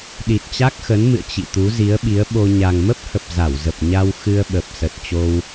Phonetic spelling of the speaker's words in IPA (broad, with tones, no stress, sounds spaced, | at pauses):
ɗ i˨˩ t̚ t͡ɕ a˦˥ k̚ x ə˨˦ n m ɨ̰˧˨ ə̯ t͡ɕ ḭ˧˨ t̪ u˨˦ z i˨˦ ə̯ ɓ i˨˦ ə̯ ɓ o˧ ɲ a˨˩ ŋ m ə˦˥ p̚ h ə˨˩ p̚ z a˧˩ w z ə˨˩ p̚ ɲ a˧ w x ɨ˧ ə̯ ɓ ə˨˩ p̚ s ə˨˩ t̚ t͡ɕ o˧ w